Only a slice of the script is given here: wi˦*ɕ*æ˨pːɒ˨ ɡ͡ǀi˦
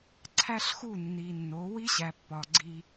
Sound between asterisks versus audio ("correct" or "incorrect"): correct